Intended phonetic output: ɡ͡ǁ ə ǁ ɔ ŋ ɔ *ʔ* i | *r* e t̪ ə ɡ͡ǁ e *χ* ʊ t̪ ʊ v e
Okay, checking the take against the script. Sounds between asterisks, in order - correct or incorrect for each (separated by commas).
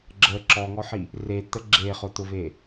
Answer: incorrect, correct, correct